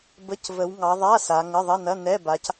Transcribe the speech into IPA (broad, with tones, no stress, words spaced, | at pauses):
bə˧˥˧cvə˨˦w ŋɑ˨˦ðˤa˧˥˧ sa˨˦ŋə˧˥˧ ðˤɐ˧˥˧nɐ˧˥˧nɛ˧˥˧ba˨˦c